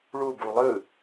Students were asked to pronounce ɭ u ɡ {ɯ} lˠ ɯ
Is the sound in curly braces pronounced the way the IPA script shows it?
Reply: no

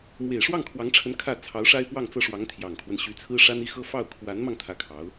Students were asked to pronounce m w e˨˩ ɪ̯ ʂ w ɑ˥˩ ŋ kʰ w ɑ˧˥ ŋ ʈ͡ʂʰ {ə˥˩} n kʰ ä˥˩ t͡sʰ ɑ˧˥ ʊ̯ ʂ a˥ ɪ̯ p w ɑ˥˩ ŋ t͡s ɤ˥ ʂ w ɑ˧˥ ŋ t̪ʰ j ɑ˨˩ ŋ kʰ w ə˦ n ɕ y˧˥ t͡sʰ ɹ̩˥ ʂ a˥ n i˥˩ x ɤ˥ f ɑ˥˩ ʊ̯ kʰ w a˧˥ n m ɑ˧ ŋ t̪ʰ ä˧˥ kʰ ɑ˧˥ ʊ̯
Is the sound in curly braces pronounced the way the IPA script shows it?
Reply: no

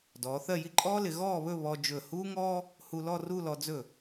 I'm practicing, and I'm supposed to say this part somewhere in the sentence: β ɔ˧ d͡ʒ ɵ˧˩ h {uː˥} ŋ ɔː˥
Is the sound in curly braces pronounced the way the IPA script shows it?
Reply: yes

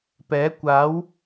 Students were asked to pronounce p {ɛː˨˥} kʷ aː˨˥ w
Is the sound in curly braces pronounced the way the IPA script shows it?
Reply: yes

